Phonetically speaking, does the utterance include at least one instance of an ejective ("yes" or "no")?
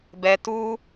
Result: no